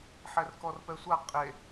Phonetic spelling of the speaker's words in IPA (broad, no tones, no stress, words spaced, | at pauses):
ħɛrkɔrpɛsʷa qʼe